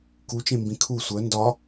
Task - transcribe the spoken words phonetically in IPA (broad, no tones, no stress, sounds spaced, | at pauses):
k u t͡ʃ ẽ m b ĩ kʰ u sʷ œ n d ɒ